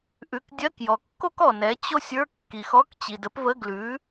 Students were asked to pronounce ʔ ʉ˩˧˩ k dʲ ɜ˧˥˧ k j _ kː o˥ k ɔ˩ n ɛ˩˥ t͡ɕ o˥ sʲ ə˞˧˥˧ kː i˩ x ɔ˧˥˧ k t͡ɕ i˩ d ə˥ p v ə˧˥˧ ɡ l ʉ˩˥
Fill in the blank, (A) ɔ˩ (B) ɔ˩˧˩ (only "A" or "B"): A